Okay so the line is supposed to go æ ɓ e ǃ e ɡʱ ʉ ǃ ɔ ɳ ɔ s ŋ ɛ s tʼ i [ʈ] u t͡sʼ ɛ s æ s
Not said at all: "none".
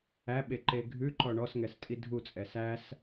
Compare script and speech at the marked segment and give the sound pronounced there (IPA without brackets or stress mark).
dʱ